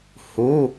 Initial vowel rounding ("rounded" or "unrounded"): rounded